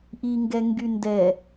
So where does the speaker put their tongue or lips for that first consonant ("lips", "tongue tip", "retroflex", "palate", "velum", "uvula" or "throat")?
throat